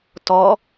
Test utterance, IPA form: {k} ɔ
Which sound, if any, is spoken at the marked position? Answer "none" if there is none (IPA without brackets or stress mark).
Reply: t